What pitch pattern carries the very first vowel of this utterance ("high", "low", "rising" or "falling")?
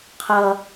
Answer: high